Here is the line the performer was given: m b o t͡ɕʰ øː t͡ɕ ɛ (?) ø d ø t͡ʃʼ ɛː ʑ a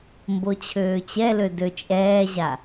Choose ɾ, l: l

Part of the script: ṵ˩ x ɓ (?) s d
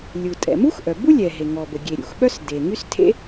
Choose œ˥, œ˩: œ˥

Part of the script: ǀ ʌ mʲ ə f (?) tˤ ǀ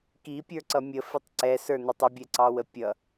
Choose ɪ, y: ɪ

